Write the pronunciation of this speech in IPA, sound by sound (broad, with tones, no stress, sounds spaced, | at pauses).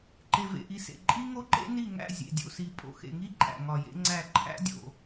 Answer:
ǃ e˨ v ḛ˨ ʔ i˨ s ḛ˨ ǃʼ i˦ ŋ o˦ ǃ ḛ˦ n i˦˨ ŋ æ̰˦˨ zʲ ḛ˨ dʲ o̰˨ s i˨ pʼ o̰˨ x ḛ˨ ŋ i˦ ǃʼ æ̰˨ ŋ ɒ˨ j ḛ˦ ŋ͡ǀ æ˦˨ ǃʰ æ̰˦ dʲ o̰˨